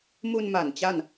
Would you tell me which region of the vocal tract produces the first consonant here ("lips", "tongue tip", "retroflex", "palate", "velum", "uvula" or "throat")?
lips